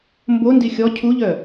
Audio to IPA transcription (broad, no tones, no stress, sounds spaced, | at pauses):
m b o n d i xʲ ɔ cʰ u ʎ œ